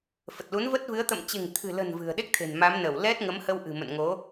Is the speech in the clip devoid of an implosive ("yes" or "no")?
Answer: no